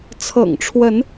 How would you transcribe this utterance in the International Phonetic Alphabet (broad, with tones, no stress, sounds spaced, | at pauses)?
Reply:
t͡sʰ ɤ̰˨˩ ŋ ʈ͡ʂʰ w ə˨˦ n